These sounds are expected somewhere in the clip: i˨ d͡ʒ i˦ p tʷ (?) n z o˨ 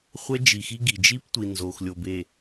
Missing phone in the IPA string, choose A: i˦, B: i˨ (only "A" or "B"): B